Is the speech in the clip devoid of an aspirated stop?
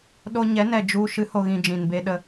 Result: yes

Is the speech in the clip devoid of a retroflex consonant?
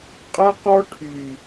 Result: no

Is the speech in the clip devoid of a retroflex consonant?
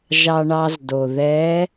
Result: no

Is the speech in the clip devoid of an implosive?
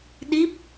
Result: no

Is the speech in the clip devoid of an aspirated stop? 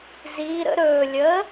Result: yes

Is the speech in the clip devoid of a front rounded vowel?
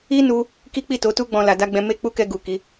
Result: yes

